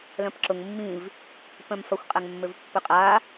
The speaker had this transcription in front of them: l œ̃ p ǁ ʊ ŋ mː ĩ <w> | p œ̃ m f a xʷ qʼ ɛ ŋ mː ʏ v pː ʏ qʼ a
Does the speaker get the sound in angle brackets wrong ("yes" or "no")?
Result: yes